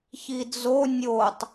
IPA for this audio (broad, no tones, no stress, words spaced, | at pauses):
çid͡zo nʲotˤ